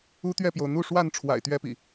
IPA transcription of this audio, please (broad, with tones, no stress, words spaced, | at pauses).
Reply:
u˦t̪ɥɛ˥˨pjo˩ʊ̯ n̪u˥˨ʂwa˥˨n ʈ͡ʂʰwa̰˨˩ɪ̯t̪ɥɛ˦pḭ˨˩